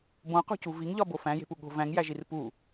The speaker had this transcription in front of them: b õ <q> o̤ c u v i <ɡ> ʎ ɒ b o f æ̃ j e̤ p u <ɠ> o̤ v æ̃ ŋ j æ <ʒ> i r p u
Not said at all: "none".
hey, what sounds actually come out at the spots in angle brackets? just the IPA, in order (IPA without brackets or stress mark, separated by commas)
q, ŋ, ɠ, ʒ